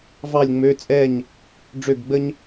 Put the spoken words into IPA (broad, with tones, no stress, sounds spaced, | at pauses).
v ɑ˥˨ lʲ ŋ͡m ø˧˥˧ t͡sʼ ɛ˥˨ ɲ | ɖ͡ʐ ø˥˨ ɡ ɡ͡b ə˥ ɲ